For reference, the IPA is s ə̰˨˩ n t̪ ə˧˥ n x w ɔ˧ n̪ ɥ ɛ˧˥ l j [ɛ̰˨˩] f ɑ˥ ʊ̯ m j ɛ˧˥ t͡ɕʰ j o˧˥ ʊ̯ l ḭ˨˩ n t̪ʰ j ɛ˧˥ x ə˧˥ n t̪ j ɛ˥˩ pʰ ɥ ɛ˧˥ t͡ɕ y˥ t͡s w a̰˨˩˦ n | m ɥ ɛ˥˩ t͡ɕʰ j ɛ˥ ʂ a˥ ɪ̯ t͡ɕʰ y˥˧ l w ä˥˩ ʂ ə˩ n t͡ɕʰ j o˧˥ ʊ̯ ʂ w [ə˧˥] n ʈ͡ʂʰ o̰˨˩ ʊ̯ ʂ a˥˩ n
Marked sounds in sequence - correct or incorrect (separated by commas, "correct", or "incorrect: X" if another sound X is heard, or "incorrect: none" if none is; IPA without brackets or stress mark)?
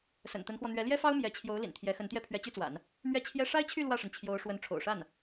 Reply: incorrect: ɛ˥, correct